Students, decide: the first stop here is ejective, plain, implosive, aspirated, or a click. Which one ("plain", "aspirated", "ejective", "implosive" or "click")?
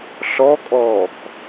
ejective